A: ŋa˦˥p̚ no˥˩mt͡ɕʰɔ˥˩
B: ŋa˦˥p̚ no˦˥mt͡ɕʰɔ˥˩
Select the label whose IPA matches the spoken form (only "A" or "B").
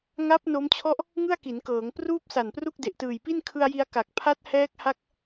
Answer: B